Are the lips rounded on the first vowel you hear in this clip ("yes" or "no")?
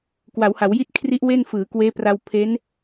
no